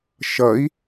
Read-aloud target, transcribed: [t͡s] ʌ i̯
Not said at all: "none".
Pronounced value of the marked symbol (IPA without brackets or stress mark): ʃ